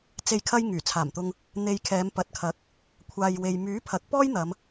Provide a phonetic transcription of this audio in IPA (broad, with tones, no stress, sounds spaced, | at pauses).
t͡s e˨ j kʰ ɐ˧ j ŋ yː˨˩ t͡sʰ aː˨˩ m t̪ ʊ˧ ŋ | n̪ e˧ j kʰ ɛː˨˧ m p ɐ˨˥ t̚ kʰ ɐ˨˥ k̚ | kʷʰ aː˨ j w e˨ j m yː˨˥ pʰ ɐ˨˥ k̚ p ɔː˥ j n̪ ɐ˨˧ m